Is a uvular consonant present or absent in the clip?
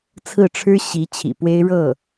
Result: absent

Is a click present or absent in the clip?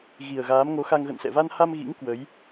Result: absent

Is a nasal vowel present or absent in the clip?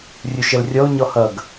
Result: absent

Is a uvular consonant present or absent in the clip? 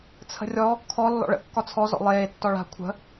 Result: absent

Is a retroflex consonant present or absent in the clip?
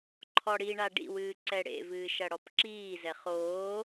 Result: present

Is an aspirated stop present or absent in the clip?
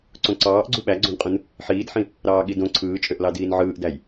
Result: present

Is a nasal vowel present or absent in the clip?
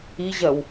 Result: absent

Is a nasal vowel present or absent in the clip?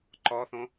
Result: present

